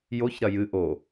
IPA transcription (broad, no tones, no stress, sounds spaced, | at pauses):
j o ç ɾ ɐ j ɨ ʔ o